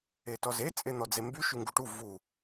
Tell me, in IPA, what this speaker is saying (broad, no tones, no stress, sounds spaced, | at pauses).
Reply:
e t ɔ z e t͡sʼ e n̪ ɔ d͡z e m b y ʃ y ŋ ɡ u ʈ u v u